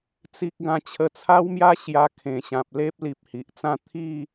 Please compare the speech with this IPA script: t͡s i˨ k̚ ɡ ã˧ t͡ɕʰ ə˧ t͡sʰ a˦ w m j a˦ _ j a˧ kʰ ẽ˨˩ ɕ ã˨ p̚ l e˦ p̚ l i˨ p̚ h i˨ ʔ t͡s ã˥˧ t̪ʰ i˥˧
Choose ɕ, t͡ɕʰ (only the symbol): ɕ